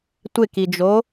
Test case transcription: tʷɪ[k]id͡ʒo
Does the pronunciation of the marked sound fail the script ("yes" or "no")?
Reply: no